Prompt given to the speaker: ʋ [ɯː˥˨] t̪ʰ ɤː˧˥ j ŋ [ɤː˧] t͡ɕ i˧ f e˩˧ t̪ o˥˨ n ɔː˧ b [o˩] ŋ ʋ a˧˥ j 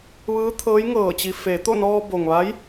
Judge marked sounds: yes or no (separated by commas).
no, no, yes